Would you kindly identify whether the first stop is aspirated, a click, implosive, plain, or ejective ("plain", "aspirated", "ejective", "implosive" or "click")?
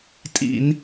ejective